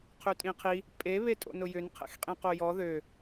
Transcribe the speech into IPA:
qʰ ø tʼ ĩ qʰ i | pʼ e β e tʼ o̰ n ʊ j ʏ n qʰ ɛ̰ x qʼ ĩ q o j ɔ ð ø

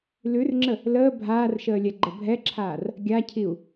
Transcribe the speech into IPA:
l ʉ r ŋ͡ǁ ə | l əː bʱ aː r ʃ əː lʲ ɛ ɡ͡ǃ ə bʱ ɛ ǁʰ aː r | ɡʲ a cʰ i u̯

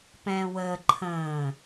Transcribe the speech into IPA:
p ɛ̃ː w əː ǃʰ ə̃ː

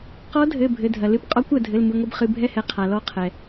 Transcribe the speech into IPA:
q ɔ˧˥ dʱ ɘ˩˧˩ bʱ ɘ˩˧˩ dʱ ɐ˩ l ɨ˧˥ p qʼ ɔ˧˥ kʷ ɐ˩ dʱ ɘ˩˧˩ l m ɨ˩˧˩ ŋʷ ɨ˥˨ b χ ɨ˩˧˩ bʱ ɛ˥˨ h ɛ˩˧˩ qʰ a˩ l ɔ˥˨ qʰ ɛ˩

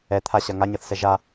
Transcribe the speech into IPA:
ɛ t̪ʰ a ɕ ɐ ŋ a ɲ ʌ θ s ɛ ʒ a

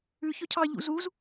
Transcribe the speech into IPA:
ʉ ç ɵ cʰ ɑ ʎ ṵ z u z

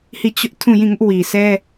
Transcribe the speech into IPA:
h i˦˨ t͡ɕ ʊ˦ ʔ tʰ ũ˦˨ j ĩ˦˨ ŋ ʊ˦ ʔ w i˨ sʰ ɛ˦

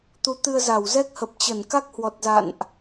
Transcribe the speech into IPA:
t̪ u˨˦ t̪ ɨ˧ ə̯ z a˧˩ w z ɛ˦˥ k̚ h ə˨˩ p̚ t͡ɕ ə˧˩ n k a˦˥ k̚ h w ɔ˨˩ t̚ z a̰˧˨ n ʔ

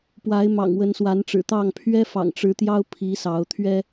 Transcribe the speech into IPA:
p w a˨˦ ɪ̯ m ɑ̰˨˩ ŋ w ə˨˦ n s w a˨˦ n ʈ͡ʂ ɻ̩˨˩ t̪ ɑ˥˨ ŋ pʰ ɥ ɛ˦ f ɑ̰˨˩ ŋ ʈ͡ʂ ɻ̩˨˦ t̪ j ɑ˦ ʊ̯ pʰ i˨˦ s ɑ˨˦ ʊ̯ t̪ʰ ɥ ɛ˦

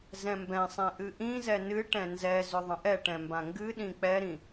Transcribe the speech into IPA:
z ɛ̃ m b ɛ̃ sˤ ɛ̃ ʔ ɨ ʔ ĩ z ɛ n ɨ ʈ ɛ̃ n z ɛ z ʏ ðˤ ə̃ ʔ ɛ ʈ ɛ̃ m b ã ŋ ɡ ɨ ɗ ĩ k͡p ɛ ɾ ĩ

